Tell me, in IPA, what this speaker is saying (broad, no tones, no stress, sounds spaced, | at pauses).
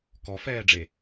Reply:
k ɔ f ɛː ɖ͡ʐ e